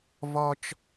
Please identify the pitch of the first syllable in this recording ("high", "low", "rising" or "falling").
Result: high